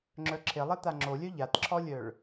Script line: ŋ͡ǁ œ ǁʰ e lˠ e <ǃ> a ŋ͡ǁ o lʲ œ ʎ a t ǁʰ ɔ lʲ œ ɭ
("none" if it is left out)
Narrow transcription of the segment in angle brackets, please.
t̪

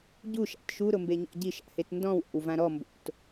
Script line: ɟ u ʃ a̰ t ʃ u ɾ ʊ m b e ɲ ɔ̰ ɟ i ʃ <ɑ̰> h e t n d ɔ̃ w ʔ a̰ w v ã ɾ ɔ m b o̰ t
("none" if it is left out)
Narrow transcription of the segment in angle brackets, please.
a̰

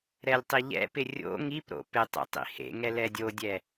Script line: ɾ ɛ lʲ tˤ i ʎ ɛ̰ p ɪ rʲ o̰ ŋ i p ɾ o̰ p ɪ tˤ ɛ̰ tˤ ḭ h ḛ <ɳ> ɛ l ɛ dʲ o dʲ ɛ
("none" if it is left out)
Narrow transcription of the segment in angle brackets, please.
ŋ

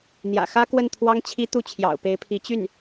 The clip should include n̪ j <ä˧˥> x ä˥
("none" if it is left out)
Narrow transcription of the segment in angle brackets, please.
ä̰˨˩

